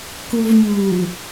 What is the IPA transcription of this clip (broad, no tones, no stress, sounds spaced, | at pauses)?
k u v ɲ uː